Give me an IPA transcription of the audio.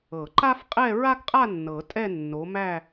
ɤ˨˩˦ǃa˥f qʼɛ˥˧ɹa˥ɡqʼa˥˧ nːɤ˨˩˦tʼɛ˥˧ nːo˨˦mæ˥˧

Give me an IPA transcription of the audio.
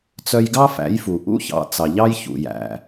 t͡sœ˧jɡɑ˥fæ̰˩˥jfu˩ ʔṵ˥ çɑ̰˩˥t͡sɑ˩ʎɑ˥j çṵ˩jæ̰˩

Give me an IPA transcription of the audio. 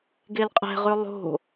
ɡelqʼɛ̤ʁʉ lˠo̤

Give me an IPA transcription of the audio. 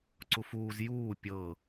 ǀufuːz juː pʲɤ

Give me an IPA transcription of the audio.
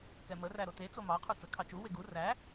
kɛmə ræɾote t͡somɑ qʰut͡sə kʰɑt͡ʃu weɡu ræ

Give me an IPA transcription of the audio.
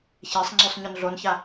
çesˤŋ͡ǀʉsˤ ɲɵnɮonça

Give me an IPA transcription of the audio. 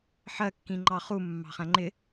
ħɜkːĩ ŋ͡ǃɑχu mːɑ̤χæ̃ŋ͡ǃɪ

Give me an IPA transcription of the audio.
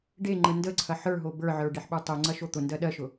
ɖeŋ͡ǃə ndəǀʰɐ ħə˞ɦo bə˞ʕə˞ ɖeħɓə˞tˤoŋ͡ǀɐ ʃot̪ʊndɜ ɗɜʃʊ

